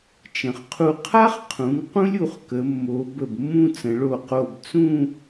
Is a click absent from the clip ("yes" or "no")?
yes